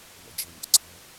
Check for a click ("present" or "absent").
present